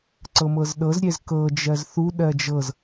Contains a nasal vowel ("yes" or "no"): no